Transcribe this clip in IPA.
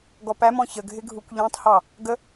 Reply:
ɡɔpæmɔ̃ çəɡʱɪɡʱukʷ ʎæ̃tˤhɑ | ɡə

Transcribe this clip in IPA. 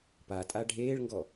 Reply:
patʼa ɖʱeːɭŋɡɔ

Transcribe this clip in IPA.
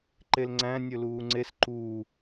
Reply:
ǃelŋ͡ǀæ̃ nʲɵluːŋ͡ǀes ǃuː

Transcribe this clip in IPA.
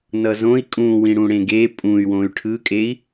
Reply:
nʌzõi̯ kʼũwĩ ɽũɽẽɡe pʼũy̯ wõy̯ʈʰɯkʼei̯

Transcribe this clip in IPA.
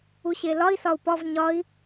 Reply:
uɕelɒi̯ sɒu̯pɒv ɲɒi̯

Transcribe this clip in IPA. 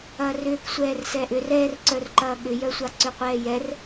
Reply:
ɐːrʏːksʷɛːr sɛːʔʏr ɛːrǀœr ǃɐːɠʏjœsʷa ǀʏqʷɛːjɛr

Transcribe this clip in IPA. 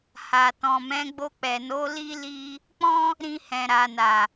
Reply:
ha˨ tɔ̃˨mɛ̃˨˦ɡ͡bo˧ k͡pɛ˨no˨˦ li˦ li˦ | k͡pɔ̃˦ | ɾĩ˧hɛ̃˨ ɾa˨na˨

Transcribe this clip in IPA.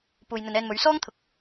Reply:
puː˨jn̪ɵ˨nɛː˧nmɵ˨˧ɥ sɔː˥ŋt̪ʰʊ˨k̚

